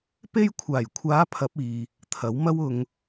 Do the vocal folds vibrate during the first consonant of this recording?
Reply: no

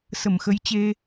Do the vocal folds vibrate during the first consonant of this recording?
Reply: no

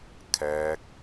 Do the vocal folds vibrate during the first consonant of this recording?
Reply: no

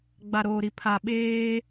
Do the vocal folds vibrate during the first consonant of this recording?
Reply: yes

